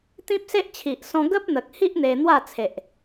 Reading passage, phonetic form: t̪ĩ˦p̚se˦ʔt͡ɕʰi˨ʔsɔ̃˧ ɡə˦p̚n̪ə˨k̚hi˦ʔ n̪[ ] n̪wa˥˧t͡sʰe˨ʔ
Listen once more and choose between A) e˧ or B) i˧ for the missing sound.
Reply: A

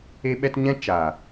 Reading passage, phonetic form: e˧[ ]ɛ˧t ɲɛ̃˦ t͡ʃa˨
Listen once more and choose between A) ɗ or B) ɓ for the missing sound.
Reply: B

